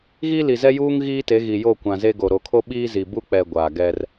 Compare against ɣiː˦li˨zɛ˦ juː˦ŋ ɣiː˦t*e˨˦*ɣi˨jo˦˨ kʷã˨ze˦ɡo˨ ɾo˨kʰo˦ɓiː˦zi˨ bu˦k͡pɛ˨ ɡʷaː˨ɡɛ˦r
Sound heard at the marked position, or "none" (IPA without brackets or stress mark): e˨˦